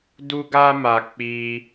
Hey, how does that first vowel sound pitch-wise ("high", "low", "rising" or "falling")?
high